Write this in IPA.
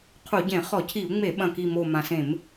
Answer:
qʰ u˧˩˧ ɟ ẽ˧˩˧ χ ɔ˧˩˧ cʰ i˧˩˧ u̯ ŋ͡m e˧˩˧ ɓ ɐ̃˨˩ k i˨˩ m o˨˩ m ã˨˩ s ẽ˧˩˧ m

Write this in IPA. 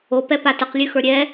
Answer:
o p ɛ p a t ə q lʲ ʉ x ə˞ ɾʲ ɛ

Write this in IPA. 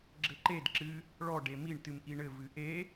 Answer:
ɡ͡ǁ ɘ ǃ e d ǁ ɨ | ɭ ɔ ɖ e m i ɳ t ɨ m ʔ i ɳ ɘ v ɨ ʔ e

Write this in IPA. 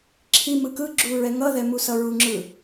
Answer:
ǁʰ i m ɯ k ɯ ɡ͡ǁ u ɹ ɛ ŋ ʌ ð ɛ m u s ʌ ɹ u ŋ͡ǁ ɯ

